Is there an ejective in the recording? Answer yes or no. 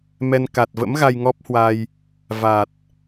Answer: no